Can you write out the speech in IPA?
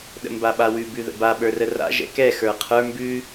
ɗ ə̰ m b a ɓ a w ʉ b ʉ ð ə̰ b a ɓ ə˞ r ə r a̰ ʒ ɛ̰ k ɛ x ə˞ qʰ ə˞ m b ʉ

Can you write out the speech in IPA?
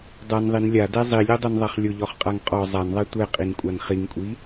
dˤ a n ðˤ i n lʲ a d ɛ zˤ i lʲ o dˤ o n ðˤ a χ lʲ ʊ ʎ ɔ χ qʼ a ŋ qʼ ɔ zˤ a n ðˤ a tʷ ɛ qʼ i n kʷʼ a n χ i ŋ kʷʼ i

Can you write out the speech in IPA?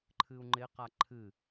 ǃʰ ɨ u̯ ŋ͡ǃ ɪ q a ǃʰ ɨ

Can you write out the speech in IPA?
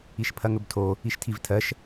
i ʃ pʰ ɐ ŋ ɵ b tʰ o | i ʃ tʰ i v tʰ ɜ ʃ

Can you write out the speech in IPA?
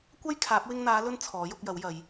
kʷ ɐ˥ j kʰ aː˨˥ p̚ w ɪ˧ ŋ n̪ aː˨˧ l ɵ˧ n t͡sʰ ɔː˨˥ j ʊ˧ k̚ j ɐ˨˥ w j ɐ˨˧ j

